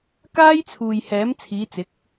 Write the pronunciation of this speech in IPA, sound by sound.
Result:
k aː˥ j t͡sʰ uː˨ j h ɛː˨˥ m t͡sʰ iː˨˧ t͡s ɪ˨˥ k̚

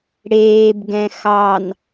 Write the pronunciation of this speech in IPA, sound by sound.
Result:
ɽ eː b ɡ ɛ̃ x ɑ n

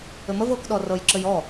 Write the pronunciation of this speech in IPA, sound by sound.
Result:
ɘ m ə v ɤ k ɗ ɔ r ɤ j ǁ ɘ j ɔ

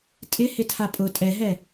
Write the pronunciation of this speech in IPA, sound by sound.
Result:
tʼ ɪ h ɪ tʰ a pʼ ʊ tʼ ɛ ɦ ɛ

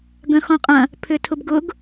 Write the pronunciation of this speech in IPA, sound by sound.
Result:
ɡ œ̃ x ɔ̃ qʼ ɐ̃ | pʰ ʏ tʰ ʊ b ɡ ʊ ɡ

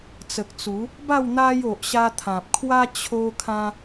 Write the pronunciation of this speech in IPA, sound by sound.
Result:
t͡s ə˨ k̚ t͡s u˨˦ | b a˥˧ w n̪ a˦ j o˨ ʔ ɕ a˧ t̪ʰ ã˨ p̚ kʰ w a˦ t͡ɕʰ o˧ kʰ ã˧

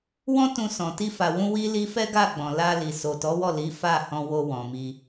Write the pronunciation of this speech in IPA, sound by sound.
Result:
w ɔ̃˦ t ũ˧ s ɔ̃˨ t i˧ f a˨ w ũ˧ w i˧ l i˧ f ɛ˦ ɡ a˦˨ ɡ͡b ɔ̃˨ l a˧ l i˨ s o˨ t ɔ˨˦ w ɔ˦˨ l i˨˦ f a˦˨ h ɔ̃˧ w o˧ w ɔ̃˨ m i˧

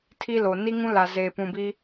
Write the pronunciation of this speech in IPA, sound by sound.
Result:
tʰ i˦ l o˨ n i˦ ŋ ũ˦ l a˨ z eː˨ p ũ˨ b i˦

